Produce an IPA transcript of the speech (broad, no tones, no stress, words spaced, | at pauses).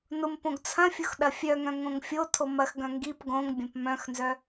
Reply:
nʊm põɡt͡sʰɐ̃fʲʊx ɗɐfʲœŋœ̃ ŋõŋfʲotʰo mɐxɡœ̃ ŋɡip ɡõŋ bʲɐ̃pmœ̃xnzœ